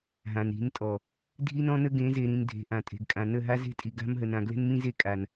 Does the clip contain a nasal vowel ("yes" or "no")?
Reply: yes